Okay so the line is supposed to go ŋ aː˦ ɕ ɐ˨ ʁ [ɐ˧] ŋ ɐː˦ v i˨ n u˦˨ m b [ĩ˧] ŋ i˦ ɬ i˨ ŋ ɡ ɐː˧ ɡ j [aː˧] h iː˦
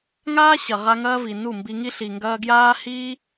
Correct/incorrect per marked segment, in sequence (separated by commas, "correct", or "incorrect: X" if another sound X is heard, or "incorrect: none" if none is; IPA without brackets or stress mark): incorrect: a˧, incorrect: i˧, incorrect: aː˦